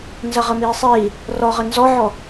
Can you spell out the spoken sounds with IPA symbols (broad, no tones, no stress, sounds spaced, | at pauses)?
n z ɐ ʁ ə m iː sˤ iː | r ɔ ʁ ə n z ɔ ʕ ɔ